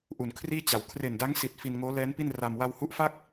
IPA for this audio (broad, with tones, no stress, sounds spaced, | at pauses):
ʔ u˨˩ n kʰ r iː˥˩ t͡ɕ a˩˦ w kʰ r e˨˩ n d a˦˥ ŋ s i˨˩ t̚ f i˧ n ŋ oː˦˥ l ɛː˦˥ n p i˥˩ n r a˧ m w a˧ w h u˦˥ ʔ f a˥˩ k̚